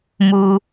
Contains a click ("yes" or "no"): no